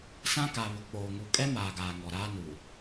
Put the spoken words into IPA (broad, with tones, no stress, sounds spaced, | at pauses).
s ã˦ k a˨ β ʊ˨ k͡p oː˨ ŋ u˨ kʼ ɛ˦ m aː˨ ɡ aː˨ ŋ ɔ˨ ɾ aː˦ n uː˨